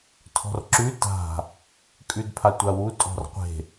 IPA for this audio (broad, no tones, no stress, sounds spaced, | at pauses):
tʰ ɔ̤ r ǁ ʉ t a̤ | kʼ ʉ d pʰ a tʷ a w u tʼ ɔ̤ r qʷ e̤